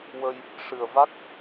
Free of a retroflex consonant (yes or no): no